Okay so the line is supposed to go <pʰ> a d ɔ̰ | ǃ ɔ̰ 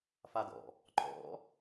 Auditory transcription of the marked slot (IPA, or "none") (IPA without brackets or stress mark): f